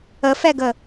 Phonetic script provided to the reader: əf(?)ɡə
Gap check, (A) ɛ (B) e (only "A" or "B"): A